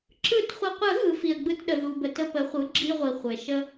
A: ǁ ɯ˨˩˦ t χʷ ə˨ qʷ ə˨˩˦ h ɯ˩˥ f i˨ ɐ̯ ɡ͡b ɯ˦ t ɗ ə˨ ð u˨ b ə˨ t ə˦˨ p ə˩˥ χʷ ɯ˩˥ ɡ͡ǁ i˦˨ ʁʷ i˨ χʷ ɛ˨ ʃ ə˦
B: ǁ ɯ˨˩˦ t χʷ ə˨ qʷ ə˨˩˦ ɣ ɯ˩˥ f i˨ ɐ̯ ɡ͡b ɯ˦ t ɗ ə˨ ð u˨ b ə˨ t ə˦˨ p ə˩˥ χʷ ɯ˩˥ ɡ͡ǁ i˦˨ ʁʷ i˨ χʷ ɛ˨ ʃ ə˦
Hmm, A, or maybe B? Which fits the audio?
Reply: B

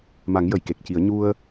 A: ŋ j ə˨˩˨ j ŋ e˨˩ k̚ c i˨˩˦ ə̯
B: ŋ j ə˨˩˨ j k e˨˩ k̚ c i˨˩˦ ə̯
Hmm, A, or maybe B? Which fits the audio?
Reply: B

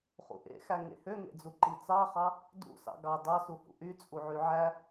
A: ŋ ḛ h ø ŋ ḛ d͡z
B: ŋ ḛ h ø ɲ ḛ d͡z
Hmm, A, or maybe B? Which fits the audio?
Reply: A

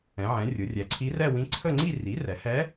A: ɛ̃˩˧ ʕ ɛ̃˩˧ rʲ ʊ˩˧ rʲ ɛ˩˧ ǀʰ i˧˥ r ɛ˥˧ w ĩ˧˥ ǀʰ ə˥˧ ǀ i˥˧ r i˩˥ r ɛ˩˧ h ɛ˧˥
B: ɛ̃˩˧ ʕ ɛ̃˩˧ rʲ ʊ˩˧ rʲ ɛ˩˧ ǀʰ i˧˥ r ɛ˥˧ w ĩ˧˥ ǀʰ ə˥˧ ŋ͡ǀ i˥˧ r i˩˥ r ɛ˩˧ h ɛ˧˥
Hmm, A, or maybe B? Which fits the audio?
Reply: B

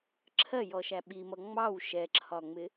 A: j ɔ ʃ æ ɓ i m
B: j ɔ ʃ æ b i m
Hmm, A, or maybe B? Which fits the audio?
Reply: A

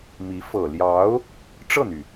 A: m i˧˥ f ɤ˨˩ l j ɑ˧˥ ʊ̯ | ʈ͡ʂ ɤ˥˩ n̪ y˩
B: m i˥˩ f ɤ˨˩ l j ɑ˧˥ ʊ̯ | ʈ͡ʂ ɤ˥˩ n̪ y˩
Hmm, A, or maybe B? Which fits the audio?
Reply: A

